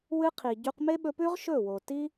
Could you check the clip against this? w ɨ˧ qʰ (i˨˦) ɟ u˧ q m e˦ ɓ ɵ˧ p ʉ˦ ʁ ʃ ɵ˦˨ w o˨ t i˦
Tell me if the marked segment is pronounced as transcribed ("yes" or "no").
no